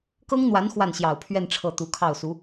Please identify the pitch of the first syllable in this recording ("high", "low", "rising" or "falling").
high